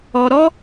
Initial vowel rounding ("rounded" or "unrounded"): rounded